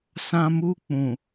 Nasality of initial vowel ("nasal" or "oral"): nasal